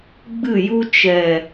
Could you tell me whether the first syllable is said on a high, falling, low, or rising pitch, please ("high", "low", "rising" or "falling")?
falling